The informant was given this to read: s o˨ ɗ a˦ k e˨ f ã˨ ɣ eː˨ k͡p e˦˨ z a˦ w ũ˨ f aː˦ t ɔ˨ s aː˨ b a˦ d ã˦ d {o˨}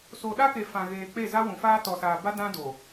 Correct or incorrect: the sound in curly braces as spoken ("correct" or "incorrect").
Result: correct